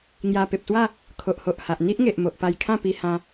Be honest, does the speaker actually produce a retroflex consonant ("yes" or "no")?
no